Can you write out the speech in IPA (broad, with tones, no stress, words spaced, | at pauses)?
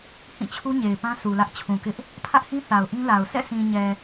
hĩ˦˨t͡ɕʰu˦ɲe˨ɪ̯ pã˦ su˨lä˦ʔ t͡ɕʰũ˨kɪ˦ʔ | pʰä˦ʔhĩ˦ θa˨ʊ̯ʔĩ˦la˨ʊ̯ sɛ̰˦˨sĩ˨ɲɛ˨